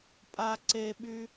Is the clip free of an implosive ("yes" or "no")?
no